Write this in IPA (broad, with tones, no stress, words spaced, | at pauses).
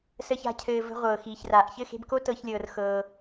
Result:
sə˦ça̤˦cʰɘː˧ və̤˧ʁʷɤː˨xiː˨çraː˨ʔ çɘ˦˨xe̤˧bko˦ tɤ˦çlʲɤː˧rxɤː˧